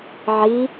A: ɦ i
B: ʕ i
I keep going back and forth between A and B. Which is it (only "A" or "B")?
B